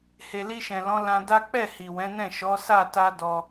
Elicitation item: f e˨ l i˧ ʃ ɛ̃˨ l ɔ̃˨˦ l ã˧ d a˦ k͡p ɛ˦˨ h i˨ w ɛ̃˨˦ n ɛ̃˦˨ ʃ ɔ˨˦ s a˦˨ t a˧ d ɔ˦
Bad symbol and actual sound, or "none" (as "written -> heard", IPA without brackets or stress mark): f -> h